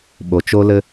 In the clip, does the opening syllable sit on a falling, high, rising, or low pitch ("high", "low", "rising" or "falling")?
low